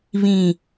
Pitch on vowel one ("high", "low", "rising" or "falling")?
low